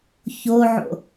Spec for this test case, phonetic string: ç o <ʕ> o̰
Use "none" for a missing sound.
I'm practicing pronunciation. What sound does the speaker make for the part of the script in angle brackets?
ʕ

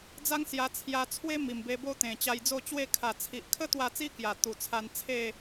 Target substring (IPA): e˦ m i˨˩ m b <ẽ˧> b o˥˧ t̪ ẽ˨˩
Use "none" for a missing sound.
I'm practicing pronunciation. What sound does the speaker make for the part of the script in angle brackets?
e˧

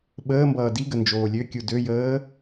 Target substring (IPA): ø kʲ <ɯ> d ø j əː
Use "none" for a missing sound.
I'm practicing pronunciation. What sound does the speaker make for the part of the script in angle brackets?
u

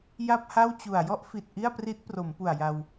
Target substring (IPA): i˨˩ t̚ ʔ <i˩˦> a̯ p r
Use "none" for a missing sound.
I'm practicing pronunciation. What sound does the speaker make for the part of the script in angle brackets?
i˥˩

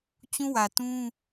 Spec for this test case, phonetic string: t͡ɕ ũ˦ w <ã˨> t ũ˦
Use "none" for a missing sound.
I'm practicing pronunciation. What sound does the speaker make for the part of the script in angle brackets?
ä˨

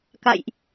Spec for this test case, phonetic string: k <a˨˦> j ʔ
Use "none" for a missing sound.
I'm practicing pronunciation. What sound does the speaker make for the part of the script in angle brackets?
a̰˧˨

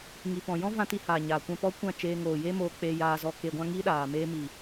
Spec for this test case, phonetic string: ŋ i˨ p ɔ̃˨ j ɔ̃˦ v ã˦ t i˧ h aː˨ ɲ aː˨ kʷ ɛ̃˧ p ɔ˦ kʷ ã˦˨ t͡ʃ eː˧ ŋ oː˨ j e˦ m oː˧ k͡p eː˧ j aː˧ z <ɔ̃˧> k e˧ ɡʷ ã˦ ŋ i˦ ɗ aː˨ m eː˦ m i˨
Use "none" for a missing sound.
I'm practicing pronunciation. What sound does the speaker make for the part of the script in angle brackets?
ɔ˧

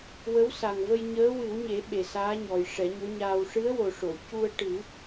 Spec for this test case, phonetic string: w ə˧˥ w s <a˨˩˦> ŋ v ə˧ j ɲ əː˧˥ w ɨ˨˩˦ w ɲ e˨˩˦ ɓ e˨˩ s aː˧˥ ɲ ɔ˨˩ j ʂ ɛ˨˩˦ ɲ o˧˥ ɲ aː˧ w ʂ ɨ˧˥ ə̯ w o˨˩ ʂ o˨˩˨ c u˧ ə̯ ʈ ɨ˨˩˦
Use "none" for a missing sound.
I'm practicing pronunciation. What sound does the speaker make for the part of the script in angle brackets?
a˨˩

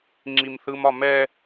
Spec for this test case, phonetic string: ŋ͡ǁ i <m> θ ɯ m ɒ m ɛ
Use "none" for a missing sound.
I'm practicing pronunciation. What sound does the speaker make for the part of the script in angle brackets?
m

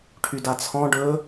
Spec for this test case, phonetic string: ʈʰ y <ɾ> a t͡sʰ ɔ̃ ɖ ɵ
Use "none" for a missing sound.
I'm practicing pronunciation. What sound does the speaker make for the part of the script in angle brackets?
d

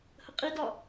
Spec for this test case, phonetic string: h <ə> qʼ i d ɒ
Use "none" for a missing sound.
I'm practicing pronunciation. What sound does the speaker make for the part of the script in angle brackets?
ə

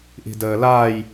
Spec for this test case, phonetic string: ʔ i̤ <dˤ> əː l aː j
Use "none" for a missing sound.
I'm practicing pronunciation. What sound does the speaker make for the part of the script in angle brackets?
d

